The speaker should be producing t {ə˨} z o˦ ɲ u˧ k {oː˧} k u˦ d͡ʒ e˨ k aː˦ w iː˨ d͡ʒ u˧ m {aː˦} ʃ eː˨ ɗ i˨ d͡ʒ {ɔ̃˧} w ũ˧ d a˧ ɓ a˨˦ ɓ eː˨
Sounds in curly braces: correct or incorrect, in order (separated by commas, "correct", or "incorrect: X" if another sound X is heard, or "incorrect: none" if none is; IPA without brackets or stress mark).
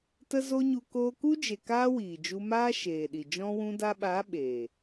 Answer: incorrect: ə˧, correct, correct, correct